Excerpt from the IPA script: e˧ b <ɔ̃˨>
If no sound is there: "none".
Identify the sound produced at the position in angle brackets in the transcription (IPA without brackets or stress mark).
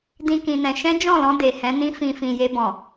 ɔ̃˨